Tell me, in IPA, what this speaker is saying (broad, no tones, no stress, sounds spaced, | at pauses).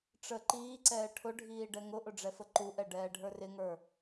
ʈ͡ʂ ə ǃ iː ǀ ɛː ʈʰ ʊ ɖʱ iː ɖ ɛ ŋ ʊ ʔ ʊ ɖ͡ʐ ɛ f ə ǃ u ʔ ɛ ɖ ɛː ɖʱ ə˞ r ɪ ŋ ə˞